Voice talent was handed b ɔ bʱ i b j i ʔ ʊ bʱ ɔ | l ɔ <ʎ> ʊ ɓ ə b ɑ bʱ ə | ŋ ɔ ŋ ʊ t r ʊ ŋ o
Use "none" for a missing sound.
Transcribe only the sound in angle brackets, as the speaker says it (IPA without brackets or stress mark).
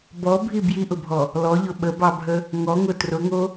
ʎ